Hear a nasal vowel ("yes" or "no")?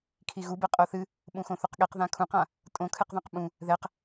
yes